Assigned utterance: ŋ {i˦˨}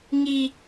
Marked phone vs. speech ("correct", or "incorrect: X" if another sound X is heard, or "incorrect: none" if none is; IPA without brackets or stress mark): incorrect: i˦